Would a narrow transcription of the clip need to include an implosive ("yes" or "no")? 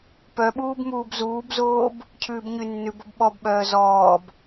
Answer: yes